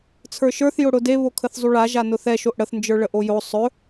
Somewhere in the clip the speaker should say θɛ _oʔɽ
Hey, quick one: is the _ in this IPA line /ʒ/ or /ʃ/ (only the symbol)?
ʃ